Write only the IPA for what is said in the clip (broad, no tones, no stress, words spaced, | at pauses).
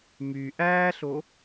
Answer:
my ʔæːɬo